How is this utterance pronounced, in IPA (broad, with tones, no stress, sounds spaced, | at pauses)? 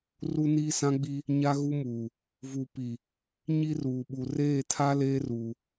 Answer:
r u˦ n iː˦ s ã˦ ɡ͡b i˦ | ɲ a˦ ɣ u˦ m uː˨ | v u˨ p i˨ | ɲ i˦ r uː˨ ɓ u˨ r eː˦˨ tʰ a˦ l eː˦ r uː˨